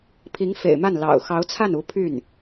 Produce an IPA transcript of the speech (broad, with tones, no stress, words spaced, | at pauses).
pʰi˧˥ŋ fḛ˨˩ɪ̯ma˥˩n lɑ̰˨˩ʊ̯ xɑ˧˥ʊ̯t͡sʰa˥˩nu˧˥ pʰy˥˩n